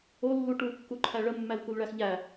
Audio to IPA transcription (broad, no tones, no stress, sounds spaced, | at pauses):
o lː u ʈ u kː u ǃʰ æ ɭ ə mː æ l k u l ɭ æ x ʎ æ